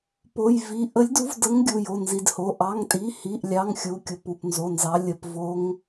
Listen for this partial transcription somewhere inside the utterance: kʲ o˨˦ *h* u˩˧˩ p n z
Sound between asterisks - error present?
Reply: yes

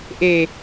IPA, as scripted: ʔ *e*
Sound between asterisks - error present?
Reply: no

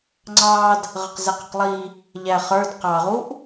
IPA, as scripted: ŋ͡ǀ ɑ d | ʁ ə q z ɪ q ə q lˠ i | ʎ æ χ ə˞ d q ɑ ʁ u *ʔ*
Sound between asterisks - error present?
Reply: no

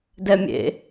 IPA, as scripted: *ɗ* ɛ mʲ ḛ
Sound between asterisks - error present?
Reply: yes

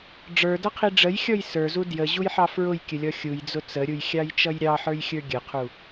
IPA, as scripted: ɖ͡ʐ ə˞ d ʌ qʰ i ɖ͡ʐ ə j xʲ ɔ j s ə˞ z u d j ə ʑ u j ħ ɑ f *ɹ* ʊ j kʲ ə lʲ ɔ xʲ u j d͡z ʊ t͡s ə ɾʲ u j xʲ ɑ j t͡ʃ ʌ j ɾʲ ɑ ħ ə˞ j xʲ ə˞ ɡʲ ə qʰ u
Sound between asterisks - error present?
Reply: no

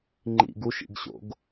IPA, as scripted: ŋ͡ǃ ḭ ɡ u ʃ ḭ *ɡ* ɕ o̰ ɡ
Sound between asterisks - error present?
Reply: no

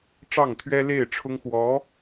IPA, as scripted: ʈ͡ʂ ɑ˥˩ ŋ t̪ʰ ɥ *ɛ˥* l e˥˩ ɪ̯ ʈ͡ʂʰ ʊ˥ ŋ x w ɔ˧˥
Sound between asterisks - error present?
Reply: no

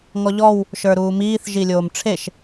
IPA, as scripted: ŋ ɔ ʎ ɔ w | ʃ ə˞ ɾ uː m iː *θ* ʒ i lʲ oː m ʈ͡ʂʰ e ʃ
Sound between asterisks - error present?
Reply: no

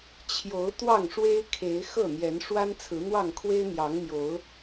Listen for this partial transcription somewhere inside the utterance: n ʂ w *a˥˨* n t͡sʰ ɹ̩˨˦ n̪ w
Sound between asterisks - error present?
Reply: yes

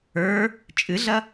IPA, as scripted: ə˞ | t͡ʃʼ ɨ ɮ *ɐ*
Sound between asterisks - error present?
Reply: no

